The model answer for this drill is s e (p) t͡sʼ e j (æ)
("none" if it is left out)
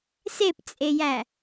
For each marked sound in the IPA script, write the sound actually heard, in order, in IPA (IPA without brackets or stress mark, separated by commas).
p, æ